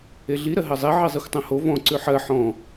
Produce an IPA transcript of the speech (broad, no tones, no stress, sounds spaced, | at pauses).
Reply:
e ɮ i ɾ ɜ ɦ ɜ zˤ e ʕ i zˤ i xʷ tˤ õ h o v ɔ̃ ǀ ʉ ħ ɜ ħ ɔ̃